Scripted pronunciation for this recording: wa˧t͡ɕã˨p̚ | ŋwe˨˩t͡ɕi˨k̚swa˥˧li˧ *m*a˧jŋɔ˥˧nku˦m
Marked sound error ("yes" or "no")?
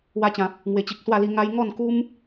yes